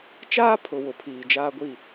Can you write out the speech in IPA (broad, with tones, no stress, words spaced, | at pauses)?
t͡ʃaː˦pʰʊ˨ wʊ˨pʰiː˨ d͡ʒaː˦ɡʷi˦˨